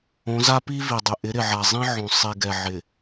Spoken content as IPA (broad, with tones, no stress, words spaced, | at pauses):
õ˨˦za˦pi˦ vi˨dˤɪ˨ ʔɪ˨˦ ɾɪ˨ʕa˨zˤĩ˦ʕõ˨ sˤi˨ɡɛ˨ ʕɪ˨